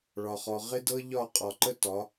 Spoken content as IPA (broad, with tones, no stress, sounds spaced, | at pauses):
ɭ ɒ˨ χ ɔ˨ ʁ ɪ˦ d ɤ˦ ʎ ɒ˦˨ qʼ ɒ˨ ǃ ə˦ t ɒ˨˦